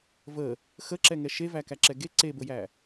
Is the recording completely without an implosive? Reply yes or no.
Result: yes